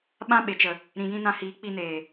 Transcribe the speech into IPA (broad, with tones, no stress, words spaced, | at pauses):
ɓã˦ɓe˨t͡ʃə˨ | ɾĩ˨jĩ˧nã˧hiː˨˦ k͡pi˧neː˨